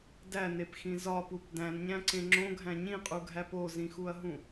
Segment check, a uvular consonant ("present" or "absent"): present